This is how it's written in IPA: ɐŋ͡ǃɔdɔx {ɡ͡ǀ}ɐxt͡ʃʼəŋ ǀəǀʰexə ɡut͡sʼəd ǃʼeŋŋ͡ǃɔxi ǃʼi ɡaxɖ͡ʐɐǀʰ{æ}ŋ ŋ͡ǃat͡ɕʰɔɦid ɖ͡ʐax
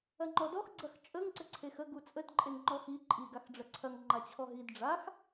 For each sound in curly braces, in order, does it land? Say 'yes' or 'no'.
yes, no

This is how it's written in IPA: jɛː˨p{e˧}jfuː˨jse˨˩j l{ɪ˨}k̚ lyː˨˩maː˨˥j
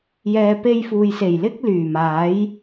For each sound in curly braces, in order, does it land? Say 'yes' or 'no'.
yes, no

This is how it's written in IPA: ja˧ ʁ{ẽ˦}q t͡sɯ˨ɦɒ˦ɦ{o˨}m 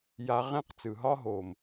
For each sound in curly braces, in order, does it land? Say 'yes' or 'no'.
yes, yes

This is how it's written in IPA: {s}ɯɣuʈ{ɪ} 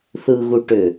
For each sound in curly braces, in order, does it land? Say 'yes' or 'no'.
no, no

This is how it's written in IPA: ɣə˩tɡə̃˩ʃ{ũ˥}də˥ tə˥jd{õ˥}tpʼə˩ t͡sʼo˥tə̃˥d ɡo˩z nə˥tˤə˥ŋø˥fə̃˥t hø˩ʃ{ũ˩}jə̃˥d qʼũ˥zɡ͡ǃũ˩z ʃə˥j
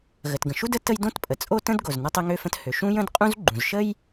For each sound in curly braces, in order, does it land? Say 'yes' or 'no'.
no, yes, no

